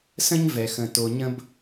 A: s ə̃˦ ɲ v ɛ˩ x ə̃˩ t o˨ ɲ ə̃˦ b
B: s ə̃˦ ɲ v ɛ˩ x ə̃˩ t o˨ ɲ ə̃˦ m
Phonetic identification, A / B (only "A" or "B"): A